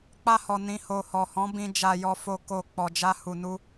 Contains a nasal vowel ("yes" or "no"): yes